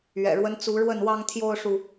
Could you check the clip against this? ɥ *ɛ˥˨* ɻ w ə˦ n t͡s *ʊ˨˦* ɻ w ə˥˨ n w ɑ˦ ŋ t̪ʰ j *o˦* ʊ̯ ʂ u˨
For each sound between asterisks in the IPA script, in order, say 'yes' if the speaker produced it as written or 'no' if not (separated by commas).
no, no, yes